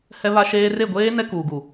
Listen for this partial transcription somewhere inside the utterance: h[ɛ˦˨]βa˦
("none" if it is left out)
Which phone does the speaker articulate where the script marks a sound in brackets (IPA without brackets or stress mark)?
ɛ˦